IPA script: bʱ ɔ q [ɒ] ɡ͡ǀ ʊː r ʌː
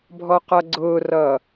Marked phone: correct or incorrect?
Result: incorrect: ʌ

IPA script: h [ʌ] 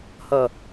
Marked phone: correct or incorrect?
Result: correct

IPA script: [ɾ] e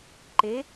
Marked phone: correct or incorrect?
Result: incorrect: ǃ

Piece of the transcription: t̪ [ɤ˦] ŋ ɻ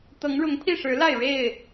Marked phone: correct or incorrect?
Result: incorrect: ɤ˨˦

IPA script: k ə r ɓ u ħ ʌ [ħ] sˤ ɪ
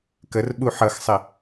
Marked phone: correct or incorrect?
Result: incorrect: x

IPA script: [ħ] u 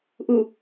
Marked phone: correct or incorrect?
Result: incorrect: ʔ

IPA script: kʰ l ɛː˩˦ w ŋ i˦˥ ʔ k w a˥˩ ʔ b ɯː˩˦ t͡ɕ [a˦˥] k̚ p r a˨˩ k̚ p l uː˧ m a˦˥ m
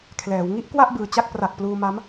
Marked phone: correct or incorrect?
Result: correct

